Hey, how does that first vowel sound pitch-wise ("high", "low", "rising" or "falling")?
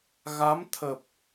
rising